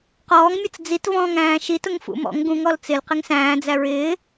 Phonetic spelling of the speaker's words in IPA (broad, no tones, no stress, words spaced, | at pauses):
qɔːŋmʲʌt͡s d͡zitvɔ̃ːŋæ̃ː ʃitʊŋ fṵmɔ̰ŋ ɡũŋɔl t͡sɪl qɪŋsæ̃ː d͡zæɹɪː